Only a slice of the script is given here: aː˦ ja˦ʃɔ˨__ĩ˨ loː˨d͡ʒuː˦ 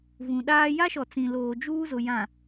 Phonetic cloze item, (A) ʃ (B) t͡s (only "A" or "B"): B